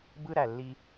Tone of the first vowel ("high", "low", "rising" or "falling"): high